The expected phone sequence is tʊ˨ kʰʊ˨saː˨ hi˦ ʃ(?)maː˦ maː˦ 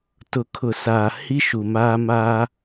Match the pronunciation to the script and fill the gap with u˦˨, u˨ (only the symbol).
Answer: u˨